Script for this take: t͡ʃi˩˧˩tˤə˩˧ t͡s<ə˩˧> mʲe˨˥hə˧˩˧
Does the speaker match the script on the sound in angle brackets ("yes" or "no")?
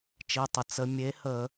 yes